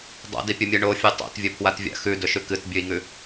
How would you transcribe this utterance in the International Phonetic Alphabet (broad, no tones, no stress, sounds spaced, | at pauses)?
dˤ a̰ d i pʲ ɵ mʲ ɨ ɳ o fʲ u tˤ a̰ t vʲ ɵ pʰ w a t vʲ a̰ x ʉ d ɵ ʃ ʉ k ɨ t bʲ ʉ i̯ ŋ ʉ